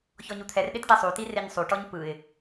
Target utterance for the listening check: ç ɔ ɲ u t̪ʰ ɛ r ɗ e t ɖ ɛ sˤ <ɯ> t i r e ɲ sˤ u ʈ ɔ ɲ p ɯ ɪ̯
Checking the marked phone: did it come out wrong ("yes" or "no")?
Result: yes